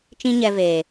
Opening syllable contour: high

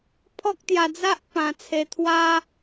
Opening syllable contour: high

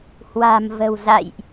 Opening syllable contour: low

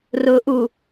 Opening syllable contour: low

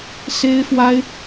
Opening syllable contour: high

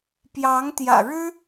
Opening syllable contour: rising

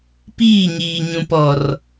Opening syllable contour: falling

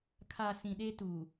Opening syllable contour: low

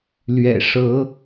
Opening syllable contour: low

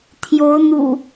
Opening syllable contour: rising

